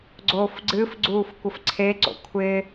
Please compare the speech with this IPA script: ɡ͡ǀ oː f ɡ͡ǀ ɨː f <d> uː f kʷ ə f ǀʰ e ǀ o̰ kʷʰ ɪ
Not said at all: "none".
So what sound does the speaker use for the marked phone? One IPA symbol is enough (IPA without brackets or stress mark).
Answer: ɡ͡ǀ